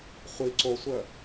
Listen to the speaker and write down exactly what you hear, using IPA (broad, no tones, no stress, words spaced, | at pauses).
χʷi ǀosʷœ